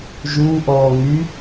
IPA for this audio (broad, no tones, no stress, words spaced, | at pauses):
ʒuːʔɔː ŋy